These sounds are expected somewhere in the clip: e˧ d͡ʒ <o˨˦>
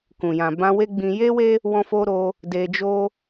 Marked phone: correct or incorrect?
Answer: incorrect: o˦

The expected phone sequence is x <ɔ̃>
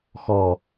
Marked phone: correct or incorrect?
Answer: incorrect: ɔ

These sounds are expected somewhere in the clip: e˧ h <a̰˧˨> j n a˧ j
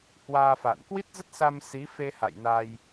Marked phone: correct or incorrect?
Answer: correct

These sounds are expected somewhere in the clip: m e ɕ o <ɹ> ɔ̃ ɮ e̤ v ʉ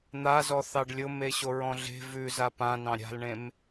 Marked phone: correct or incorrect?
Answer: correct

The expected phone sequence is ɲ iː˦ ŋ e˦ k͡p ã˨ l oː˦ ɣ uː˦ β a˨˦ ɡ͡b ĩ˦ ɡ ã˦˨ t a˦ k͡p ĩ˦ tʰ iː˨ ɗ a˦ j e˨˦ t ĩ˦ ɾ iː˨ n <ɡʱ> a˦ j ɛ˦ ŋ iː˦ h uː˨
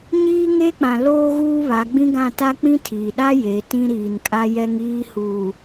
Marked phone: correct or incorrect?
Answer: incorrect: kʼ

